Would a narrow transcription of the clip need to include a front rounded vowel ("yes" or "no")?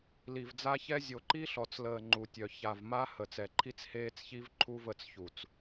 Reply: yes